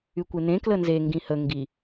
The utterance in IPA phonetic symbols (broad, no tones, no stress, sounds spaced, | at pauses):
y kʷ e n̪ ẽ k l ə n z e ŋ ɡ ĩ h ə ŋ ɡ i